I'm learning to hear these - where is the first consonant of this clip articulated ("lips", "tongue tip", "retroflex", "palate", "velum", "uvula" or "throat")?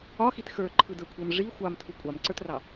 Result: velum